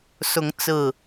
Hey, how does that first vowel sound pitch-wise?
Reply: rising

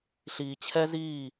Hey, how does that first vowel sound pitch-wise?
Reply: low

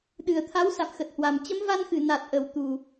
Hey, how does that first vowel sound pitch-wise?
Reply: low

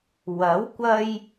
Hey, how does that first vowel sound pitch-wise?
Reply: rising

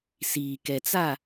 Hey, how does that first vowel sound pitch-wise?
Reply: low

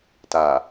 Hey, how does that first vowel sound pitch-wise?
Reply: low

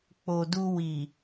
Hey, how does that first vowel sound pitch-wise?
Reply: low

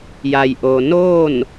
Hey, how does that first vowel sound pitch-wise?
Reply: low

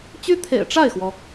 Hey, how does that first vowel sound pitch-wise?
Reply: high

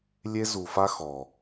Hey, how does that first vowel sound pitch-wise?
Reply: high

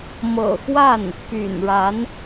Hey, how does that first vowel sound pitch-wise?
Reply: low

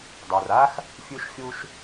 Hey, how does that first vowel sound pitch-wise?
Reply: low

